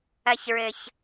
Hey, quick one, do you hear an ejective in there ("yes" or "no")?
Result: no